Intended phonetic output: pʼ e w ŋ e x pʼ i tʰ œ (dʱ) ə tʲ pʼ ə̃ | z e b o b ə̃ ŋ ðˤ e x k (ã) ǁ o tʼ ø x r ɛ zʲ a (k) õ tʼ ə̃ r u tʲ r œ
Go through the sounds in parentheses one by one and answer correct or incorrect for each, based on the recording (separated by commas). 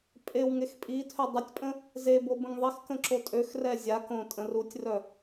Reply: incorrect, incorrect, correct